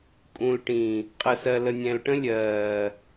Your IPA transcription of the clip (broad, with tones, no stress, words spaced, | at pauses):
kʼũ˨lʈĩ˨ | qʼə˨sɜ˨lə˨ nʲɛ̃˨lʈə̃˦ lʲɜː˨